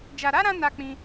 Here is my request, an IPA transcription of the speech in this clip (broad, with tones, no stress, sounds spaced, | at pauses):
d͡ʒ a˨ ɾ a˨˦ ɾ ã˧ n a˦ k͡p ĩ˦